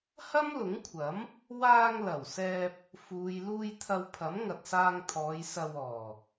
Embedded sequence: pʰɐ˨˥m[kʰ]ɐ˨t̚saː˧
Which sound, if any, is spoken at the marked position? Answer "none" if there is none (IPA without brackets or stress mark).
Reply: ŋ